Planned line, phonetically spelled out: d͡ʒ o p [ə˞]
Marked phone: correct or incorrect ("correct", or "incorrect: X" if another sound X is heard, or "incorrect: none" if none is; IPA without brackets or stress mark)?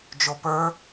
correct